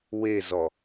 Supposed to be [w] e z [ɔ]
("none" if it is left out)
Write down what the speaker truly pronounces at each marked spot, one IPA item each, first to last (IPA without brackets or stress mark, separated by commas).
w, ɔ